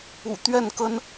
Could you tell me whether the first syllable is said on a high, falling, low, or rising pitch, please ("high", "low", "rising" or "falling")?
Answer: low